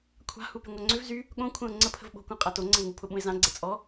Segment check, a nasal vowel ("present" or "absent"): present